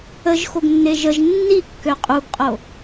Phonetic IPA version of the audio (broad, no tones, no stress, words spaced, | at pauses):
əʒxoɡ nːeʒəʒ nːikːø qʼuɡqʼo